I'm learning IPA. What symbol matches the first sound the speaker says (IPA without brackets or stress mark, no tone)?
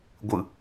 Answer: ɡʷ